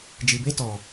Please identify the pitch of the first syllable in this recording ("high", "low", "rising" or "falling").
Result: low